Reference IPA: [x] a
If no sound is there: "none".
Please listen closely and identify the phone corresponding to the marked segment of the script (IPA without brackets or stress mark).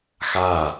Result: x